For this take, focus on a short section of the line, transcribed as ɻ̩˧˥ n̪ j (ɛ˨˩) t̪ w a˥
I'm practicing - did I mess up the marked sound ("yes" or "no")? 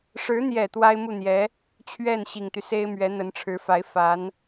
no